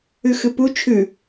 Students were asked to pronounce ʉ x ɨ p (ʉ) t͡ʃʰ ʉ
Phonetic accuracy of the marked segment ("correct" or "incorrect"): incorrect